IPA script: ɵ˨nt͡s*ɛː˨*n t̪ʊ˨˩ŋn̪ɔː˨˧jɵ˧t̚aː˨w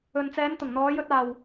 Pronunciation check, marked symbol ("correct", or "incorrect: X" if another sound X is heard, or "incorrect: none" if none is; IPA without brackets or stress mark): incorrect: ɛː˨˧